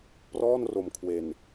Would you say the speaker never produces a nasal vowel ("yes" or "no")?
yes